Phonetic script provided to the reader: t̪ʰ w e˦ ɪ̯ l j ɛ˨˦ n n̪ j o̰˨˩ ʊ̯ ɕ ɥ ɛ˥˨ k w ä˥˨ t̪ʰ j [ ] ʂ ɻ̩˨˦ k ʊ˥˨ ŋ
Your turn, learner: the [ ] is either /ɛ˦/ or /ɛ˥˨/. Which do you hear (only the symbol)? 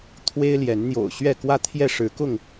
ɛ˥˨